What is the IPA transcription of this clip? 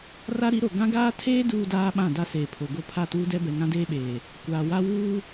r a˦ ɾ i˨˦ ɾ o˨ ɡ ã˦ ɡ aː˦ tʰ eː˦ d uː˦ d aː˦ ɓ ã˦˨ d a˦ s eː˨ pʰ o˨ ɡ o˦ pʰ a˦˨ t uː˦ d ɛ˦ b ɛ˨ ŋ ã˦ d eː˦ ɓ eː˨ | kʷ aː˨ w a˦ w uː˦

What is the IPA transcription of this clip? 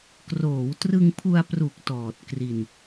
k r oː˩˦ w t r ɯ˧ ŋ pʰ u˧ a̯ p r u˨˩ k̚ t ɔː˨˩ t̚ k r i˧ n

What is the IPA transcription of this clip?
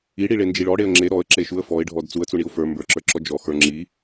i ɽ i ɭ e n d͡ʒ i ɭ ɔ ɽ e ə̯ ŋ͡ǁ e ɾ ɔ ə̯ ǁ e ʃ u ə̯ f ɔ ɪ̯ ɖʱ ɔ d t͡s u ə̯ t͡s u ɳ i ʊ̯ f ə˞ m b ə˞ ǁ ə˞ ǁ ɔ d͡ʒ ɔ x ə˞ ŋ͡ǁ i

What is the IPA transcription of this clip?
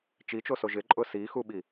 t͡ʃ i t͡ʃ o s o ʒ ɪ ǃʼ ʊ s i x u ɓ i

